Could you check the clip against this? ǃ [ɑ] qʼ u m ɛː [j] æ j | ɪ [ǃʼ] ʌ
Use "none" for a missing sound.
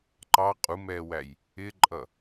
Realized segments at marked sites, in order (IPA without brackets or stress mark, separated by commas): ɑ, w, ǃʼ